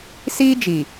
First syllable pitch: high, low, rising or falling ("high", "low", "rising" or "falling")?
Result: high